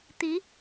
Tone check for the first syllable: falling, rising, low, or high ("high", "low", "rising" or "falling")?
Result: rising